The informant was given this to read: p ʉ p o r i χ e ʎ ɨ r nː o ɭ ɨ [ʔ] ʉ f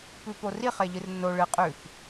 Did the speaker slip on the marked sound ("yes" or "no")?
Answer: yes